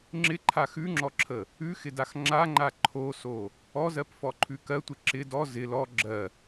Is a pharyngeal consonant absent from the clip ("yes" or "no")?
yes